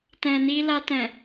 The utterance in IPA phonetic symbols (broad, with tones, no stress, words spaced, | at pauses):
tɛ̃˨ni˧la˧tɛ̃˨